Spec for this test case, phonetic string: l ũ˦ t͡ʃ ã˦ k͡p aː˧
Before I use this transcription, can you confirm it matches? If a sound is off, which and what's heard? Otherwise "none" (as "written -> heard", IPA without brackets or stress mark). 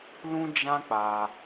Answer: t͡ʃ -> d͡ʒ